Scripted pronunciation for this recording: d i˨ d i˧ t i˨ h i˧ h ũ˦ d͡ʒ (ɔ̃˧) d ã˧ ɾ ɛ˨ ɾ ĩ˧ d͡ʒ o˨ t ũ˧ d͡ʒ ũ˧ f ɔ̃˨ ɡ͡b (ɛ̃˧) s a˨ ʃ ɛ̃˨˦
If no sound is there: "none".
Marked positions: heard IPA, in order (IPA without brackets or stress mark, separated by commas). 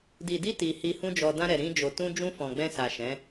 ɔ˧, ɛ̃˧